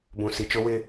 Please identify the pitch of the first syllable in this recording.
low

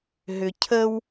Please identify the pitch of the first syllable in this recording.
low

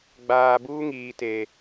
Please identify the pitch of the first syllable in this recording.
low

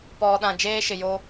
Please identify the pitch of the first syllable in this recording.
low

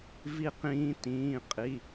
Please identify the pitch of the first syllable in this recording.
falling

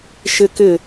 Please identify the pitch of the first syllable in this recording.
high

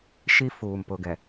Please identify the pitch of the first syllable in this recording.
high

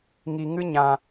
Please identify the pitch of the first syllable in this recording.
low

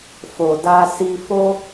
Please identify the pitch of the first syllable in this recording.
low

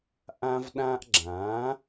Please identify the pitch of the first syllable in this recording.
high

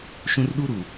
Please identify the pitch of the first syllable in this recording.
high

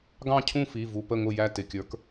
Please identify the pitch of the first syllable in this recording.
falling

